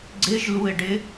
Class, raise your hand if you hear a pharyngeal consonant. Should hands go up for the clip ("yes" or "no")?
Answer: no